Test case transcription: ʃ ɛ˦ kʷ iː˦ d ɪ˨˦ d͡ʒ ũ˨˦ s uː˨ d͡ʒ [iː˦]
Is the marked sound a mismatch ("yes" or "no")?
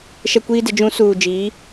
yes